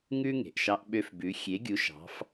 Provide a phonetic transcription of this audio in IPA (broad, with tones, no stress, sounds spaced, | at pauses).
ŋ ʉ˦ ŋ e̤˩ ʔ ʃ ɑ˦ ʔ ɓ ø˦ f b ʉ˨˦ xʲ e˨˦ ɡʲ u˨˦ ʃ ɑ̤˨˦ f